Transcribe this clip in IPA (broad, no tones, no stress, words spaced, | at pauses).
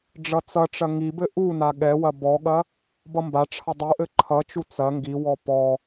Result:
ɖ͡ʐʌt͡sʌʈ͡ʂɐ ŋibɘ ʔuna ɠɛwɐ bɔɠɐ | bʌmbaʈ͡ʂʰʌ dˤuʔɘ ǃʰʌt͡ʃu t͡sɐ ŋɡiwɔ pɔ